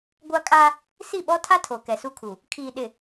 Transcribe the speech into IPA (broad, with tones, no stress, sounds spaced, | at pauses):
ɡʷ a˦ kʼ a˦ | s i˦˨ ɓ ɔ˦ tʰ a˦ tʰ o˨ k ɛ˨ s u˦ kʰ u˨ | kʰ iː˨ ɗ ɪ˨